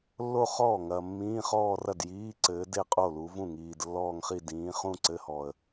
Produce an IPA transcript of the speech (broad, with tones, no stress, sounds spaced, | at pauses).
lː o˥˧ χ ɔː˥˩ ŋ ɐː˨ mː ĩː˧˥˧ χ ɔː˥˧ r ɐ˥˩ d j iː˧˥˧ ǀ ɘː˨˦ d e˥˧ qʼ o˥˩ l u˨˦ v ũ˥˩ ŋ iː˨ d lː ɔː˥˧ ŋ χ i˥˧ d ĩː˨˦ χ ũ˥˧ ǀ ɘ˧˥˧ h ɔ˨ ə̯